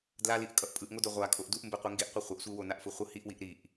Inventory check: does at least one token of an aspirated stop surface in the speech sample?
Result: no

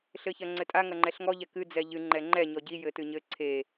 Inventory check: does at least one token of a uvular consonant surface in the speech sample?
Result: no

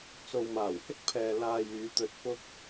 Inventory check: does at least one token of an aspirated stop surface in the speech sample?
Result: yes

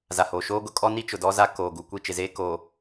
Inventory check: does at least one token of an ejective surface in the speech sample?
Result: yes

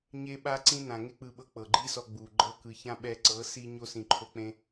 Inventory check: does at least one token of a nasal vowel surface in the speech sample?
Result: yes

